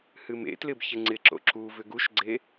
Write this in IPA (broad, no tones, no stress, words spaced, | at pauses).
hɨmḛtlɪb çɪŋ͡ǀɪǁo̰ ǁu vʏɡuʃɡ͡ǀe